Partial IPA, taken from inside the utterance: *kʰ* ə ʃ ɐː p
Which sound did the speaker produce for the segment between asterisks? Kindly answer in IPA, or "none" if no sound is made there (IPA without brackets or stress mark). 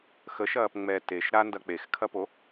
x